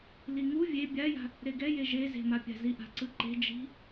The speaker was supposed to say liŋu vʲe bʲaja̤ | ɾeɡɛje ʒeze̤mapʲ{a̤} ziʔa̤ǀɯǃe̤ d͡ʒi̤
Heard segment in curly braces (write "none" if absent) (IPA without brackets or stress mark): a̤